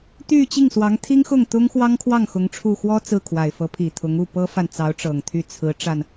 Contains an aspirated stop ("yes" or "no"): yes